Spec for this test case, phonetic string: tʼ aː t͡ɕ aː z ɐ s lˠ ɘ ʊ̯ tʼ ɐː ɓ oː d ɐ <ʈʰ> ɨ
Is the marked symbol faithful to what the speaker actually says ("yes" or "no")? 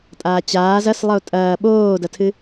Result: no